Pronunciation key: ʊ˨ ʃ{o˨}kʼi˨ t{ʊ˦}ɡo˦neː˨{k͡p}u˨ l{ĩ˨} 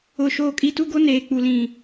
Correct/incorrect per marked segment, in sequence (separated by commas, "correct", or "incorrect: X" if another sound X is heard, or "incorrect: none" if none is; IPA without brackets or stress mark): incorrect: oː˨, incorrect: u˦, correct, correct